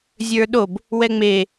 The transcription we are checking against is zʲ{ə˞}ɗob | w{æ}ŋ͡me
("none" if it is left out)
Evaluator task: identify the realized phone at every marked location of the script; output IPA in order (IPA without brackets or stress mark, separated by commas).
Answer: ə˞, ɛ